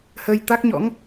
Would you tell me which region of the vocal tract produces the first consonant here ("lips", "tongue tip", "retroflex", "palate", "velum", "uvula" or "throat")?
throat